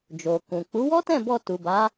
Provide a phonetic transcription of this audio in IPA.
d͡ʒ o˨ k ũ˨ k͡p u˨˦ w ɔ˦ t ɛ̃˦˨ b ɔ˧ t u˨ b a˨˦

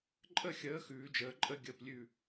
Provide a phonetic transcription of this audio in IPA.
ǃʼ ə˥˩ xʲ əː˨˥ x ʉː˨˥ d͡ʒ əː˨˥ ǃʼ ə˦˥ ɡʲ ə˥˩ p lʲ ʉ˥˩

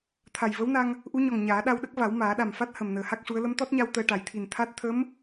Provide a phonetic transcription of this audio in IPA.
t̪ʰ a˨˩ j v ə˧˥ w n a˧ ŋ | ʔ u˧˥ ɲ ɔ˨˩ ŋ ɲ aː˨˩˦ ɗ a˧ w ɗ ə˦˥ k̚ v a˨˩˦ w m aː˨˩˦ ɗ a˨˩ m f a˦˥ t̚ h ə˨˩ m n əː˨˩˦ h a˦˥ k̚ ʂ u˧˥ ə̯ l ə˧˥ m t̪ ɔ˦˥ t̚ ɲ a˧ w t̪ əː˧ ʈ a˨˩˦ j t̪ʰ i˨˩ n t̪ʰ a˦˥ t̚ t̪ʰ ə˧˥ m

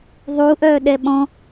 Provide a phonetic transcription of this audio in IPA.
ðˤ u ʔ œː ɗ ɛ ɓ ɔ̃

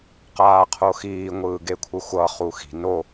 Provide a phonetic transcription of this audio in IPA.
q aː qʰ o x iː ŋʷ ɯː ɡ e kʷʰ ɯ xʷ ʌ χ u x i̤ n o

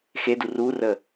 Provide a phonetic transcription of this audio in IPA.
x e d u r u r ə

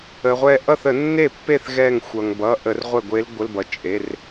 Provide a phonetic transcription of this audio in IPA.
ə˩ ʁʷ ɛ˧˩ ʔ ʌ˥˩ θ ə˧˩˧ nː e˥˩ pː e˥˩ θ ɣ ɛ˧˩ ŋ xʷ ʌ˩ ŋ b ʌ˩˧˩ ʔ ə˧˩˧ r ʁʷ ɛ˧˩ ɡʷ e˨˦ l ɡʷ ə˩˧˩ l b ʌ˩ t͡ʃʼ e˩˧˩ r

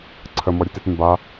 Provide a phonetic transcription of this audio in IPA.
ǀʰ ə m ɔ ɾʲ ʉ t e t m b a

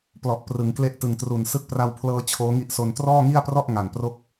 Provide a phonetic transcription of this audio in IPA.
p l ɔ˨˩ ʔ p r ɯ˩˦ ŋ k l e˦˥ ʔ t ɯ˨˩ ŋ t r u˨˩ n s ɯ˦˥ k̚ p r a˧ w pʰ l ɤː˧ t͡ɕʰ oː˦˥ ŋ i˦˥ ʔ s o˧ n t r ɔː˥˩ ŋ i˥˩ a̯ p r ɔ˥˩ ʔ ŋ a˨˩ n p r o˦˥ k̚

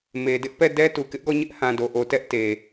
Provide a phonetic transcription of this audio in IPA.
m e˨ d ɪ˦ ʔ p ɛ˦˨ d ɛ˦ t u˨ k ɪ˦ ʔ ɡ ɔ˦˨ ɲ ɪ˦ ʔ h ã˨ d o˨ ʔ o˨ t ɛ˦ ʔ t e˨

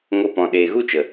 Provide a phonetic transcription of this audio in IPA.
ŋ o˧ p ɔ̃˨ ɗ eː˨ ɣ u˦ t͡ʃ ə˨

